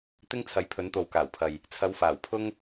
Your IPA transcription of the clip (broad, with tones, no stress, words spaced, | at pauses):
t̪ɪ˥ŋt͡sʰɐ˨˥jpʰɵ˨˥nt̪o˨w kaː˨˩wpʰɐ˨j | t͡sʰɐ˨˧wfaː˨˩wpʰʊ˥ŋ